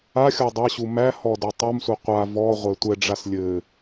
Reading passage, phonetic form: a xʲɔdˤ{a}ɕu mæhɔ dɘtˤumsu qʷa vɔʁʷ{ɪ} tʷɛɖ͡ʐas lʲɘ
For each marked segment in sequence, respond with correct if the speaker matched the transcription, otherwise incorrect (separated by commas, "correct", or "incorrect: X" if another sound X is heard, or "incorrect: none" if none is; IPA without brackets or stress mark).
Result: incorrect: ɐ, incorrect: ɛ